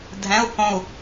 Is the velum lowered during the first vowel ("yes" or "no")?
yes